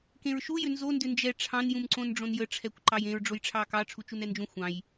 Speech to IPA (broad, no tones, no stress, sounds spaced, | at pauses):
k ẽ ɹ ʃ u j ʏ n z o n d ʏ n d͡ʒ ɛ ʈ͡ʂʰ ɑ̃ n j ũ m ǀ õ n ɖ͡ʐ õ n j ə ʈ͡ʂʰ ɛ kʷ ǃ ɑ j ẽ ɹ ɖ͡ʐ o j ʈ͡ʂʰ ɑ k ɑ ʈ͡ʂʰ u t͡ʃ u n ɛ n d͡ʒ ũ xʷ ɑ̃ j